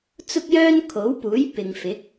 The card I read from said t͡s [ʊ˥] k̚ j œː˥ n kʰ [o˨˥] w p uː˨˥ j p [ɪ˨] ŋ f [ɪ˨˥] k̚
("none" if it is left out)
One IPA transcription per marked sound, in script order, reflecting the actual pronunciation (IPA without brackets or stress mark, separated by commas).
ʊ˥, o˨˥, ɪ˨, ɪ˨˥